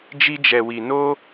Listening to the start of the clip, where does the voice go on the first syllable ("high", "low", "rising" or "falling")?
high